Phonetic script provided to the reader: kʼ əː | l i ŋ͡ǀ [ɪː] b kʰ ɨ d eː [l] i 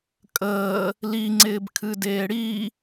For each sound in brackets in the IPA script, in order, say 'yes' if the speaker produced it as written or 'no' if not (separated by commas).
yes, no